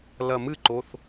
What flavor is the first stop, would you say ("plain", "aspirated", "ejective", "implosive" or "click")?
click